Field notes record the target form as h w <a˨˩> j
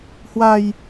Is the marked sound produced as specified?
no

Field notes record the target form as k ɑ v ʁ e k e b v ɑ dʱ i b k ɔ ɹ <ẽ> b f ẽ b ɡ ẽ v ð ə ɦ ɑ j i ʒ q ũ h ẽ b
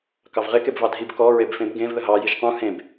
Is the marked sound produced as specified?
no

